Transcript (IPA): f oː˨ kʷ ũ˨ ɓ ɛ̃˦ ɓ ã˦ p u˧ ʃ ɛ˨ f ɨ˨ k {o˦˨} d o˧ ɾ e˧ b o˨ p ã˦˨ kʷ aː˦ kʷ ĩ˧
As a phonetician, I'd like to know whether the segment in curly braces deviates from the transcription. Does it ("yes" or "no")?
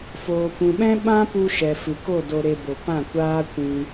no